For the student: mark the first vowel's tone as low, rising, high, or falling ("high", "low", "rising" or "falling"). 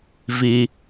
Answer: low